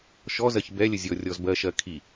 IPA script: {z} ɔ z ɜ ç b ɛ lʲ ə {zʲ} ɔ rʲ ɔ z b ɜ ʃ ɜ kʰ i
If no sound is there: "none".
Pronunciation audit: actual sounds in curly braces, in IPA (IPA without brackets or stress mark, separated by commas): ʃ, zʲ